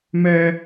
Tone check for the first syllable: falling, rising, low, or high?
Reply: high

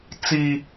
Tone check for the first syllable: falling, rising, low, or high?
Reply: high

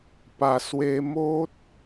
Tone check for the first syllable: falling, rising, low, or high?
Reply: low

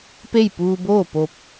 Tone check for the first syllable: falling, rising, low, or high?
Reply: falling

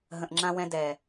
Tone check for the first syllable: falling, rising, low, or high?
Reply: low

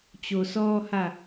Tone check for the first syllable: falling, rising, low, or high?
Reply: low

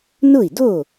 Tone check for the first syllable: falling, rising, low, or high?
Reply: falling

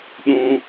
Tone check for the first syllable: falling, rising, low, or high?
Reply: high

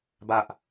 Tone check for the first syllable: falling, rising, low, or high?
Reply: high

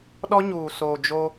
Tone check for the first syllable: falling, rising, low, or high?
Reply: high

